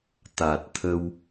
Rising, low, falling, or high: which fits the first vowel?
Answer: low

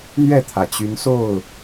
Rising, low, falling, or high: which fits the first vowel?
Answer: falling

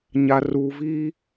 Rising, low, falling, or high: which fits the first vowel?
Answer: low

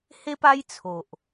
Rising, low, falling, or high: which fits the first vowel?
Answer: high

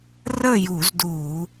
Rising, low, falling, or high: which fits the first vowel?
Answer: falling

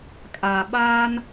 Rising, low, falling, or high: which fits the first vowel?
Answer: low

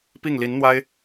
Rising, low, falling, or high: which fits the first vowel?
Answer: falling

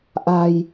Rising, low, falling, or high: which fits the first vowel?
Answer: low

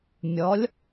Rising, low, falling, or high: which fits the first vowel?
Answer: rising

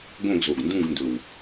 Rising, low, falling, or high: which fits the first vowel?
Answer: falling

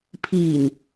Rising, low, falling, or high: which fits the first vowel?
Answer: low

